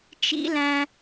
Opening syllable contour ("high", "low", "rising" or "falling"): rising